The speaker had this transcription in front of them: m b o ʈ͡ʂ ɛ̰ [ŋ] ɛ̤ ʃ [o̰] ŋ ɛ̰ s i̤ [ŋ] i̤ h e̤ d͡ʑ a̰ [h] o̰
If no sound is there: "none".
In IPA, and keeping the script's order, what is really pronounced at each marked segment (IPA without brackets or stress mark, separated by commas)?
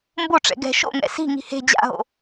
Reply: ɡ, o̰, ŋ, ɦ